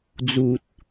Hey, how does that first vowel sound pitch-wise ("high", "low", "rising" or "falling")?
low